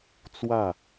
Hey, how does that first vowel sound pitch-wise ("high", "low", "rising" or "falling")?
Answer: falling